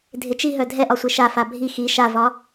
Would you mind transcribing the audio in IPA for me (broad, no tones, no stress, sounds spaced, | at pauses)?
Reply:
dʱ ɪ t͡ʃ i ɦ œ dʱ ɛ ʔ ɒ sʷ e ʃ a f a bʱ i x i ʃ a v ɒ